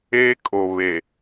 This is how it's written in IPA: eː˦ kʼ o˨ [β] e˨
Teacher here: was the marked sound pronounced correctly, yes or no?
yes